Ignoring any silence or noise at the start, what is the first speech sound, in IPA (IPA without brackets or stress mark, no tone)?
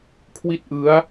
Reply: kʰ